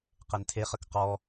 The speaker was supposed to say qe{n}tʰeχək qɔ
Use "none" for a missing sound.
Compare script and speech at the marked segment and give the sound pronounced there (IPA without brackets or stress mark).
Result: n